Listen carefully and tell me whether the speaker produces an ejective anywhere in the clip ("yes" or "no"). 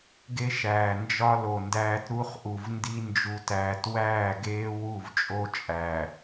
yes